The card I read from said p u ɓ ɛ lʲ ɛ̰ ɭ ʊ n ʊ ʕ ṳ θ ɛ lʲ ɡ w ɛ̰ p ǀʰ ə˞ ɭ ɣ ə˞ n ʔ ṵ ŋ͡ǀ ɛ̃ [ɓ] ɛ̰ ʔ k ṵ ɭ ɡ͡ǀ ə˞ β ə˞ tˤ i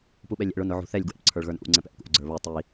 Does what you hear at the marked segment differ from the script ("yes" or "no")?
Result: yes